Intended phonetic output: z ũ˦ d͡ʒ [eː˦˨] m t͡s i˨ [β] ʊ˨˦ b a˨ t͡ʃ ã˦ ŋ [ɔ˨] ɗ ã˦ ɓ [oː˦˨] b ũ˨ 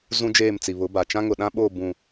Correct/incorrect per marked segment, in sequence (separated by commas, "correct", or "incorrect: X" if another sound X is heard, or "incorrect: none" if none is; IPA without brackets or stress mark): correct, correct, incorrect: ʊ˨, correct